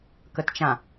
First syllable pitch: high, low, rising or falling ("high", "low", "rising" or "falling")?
low